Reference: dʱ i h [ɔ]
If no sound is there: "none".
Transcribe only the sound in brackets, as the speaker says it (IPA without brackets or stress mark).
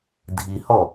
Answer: ɔ